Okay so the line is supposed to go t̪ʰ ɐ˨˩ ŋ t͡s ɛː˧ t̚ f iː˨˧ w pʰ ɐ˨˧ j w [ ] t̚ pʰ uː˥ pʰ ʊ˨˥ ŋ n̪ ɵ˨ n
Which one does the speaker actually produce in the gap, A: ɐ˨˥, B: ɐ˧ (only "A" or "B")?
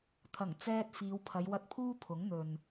B